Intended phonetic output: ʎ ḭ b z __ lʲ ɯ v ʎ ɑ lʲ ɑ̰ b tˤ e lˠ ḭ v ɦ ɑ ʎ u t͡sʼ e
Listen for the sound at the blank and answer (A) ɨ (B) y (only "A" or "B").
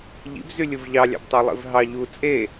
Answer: B